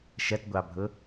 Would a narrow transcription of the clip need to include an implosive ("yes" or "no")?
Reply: no